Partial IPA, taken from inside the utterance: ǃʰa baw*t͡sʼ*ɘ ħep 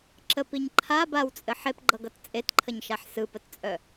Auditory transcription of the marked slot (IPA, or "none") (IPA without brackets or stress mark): t͡sʼ